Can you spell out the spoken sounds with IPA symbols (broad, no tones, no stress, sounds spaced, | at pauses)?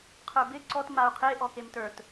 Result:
qʰ ə˞ b ɪ ǀ ɔ t m a u̯ qʰ e ʔ ɔ k e m t ə˞ t